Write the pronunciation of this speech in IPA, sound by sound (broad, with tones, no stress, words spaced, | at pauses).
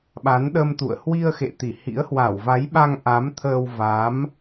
ɓa˨˦nɗə˧mt̪ṵ˧˨ə̯ hwi˧ə̯xḛ˧˨t̪i˧˩ hḭ˧˥ə̯hwa˧˩wva˨˦jɓa˧ŋ ʔa˨˦mt̪ʰəː˧w va˨˦m